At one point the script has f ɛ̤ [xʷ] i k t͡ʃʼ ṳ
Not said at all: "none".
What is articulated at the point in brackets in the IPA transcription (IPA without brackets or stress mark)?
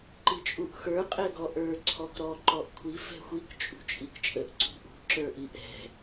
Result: xʷ